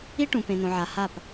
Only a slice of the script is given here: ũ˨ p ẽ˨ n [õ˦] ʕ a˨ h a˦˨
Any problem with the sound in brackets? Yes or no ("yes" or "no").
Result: yes